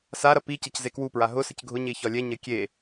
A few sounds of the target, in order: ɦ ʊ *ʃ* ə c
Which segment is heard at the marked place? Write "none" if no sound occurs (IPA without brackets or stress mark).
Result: s